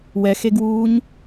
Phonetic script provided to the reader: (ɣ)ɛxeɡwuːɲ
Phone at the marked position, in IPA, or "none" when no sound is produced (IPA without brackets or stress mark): w